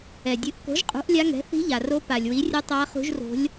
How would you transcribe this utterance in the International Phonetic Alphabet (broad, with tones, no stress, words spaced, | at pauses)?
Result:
ɛ˩dʲɨ˩˥ʔ ko̤˩˥ʒqʼṳ˩˥ʔ lʲa˧˥ŋɛ̤˩˥ θi̤˧˥ʎa˩ro˧˥ pa˩lʲwi˩˥rʲɨ˧˥ tˤa˧˥χṳ˧˥ʒro̤˧˥lʲ